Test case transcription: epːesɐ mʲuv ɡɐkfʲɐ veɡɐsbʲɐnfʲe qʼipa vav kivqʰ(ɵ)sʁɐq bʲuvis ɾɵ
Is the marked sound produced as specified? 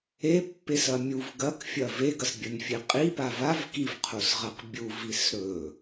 no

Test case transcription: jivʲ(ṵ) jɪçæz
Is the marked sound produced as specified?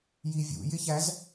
yes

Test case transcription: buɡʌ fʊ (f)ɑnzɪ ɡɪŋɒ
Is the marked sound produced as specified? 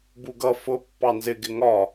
no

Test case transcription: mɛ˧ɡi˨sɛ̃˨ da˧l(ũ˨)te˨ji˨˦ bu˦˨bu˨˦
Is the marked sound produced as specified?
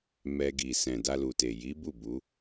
no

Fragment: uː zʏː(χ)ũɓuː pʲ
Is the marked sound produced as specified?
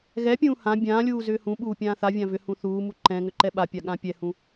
no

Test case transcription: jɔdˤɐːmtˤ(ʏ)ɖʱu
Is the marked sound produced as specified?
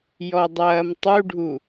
no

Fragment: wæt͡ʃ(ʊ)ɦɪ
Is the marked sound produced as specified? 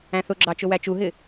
no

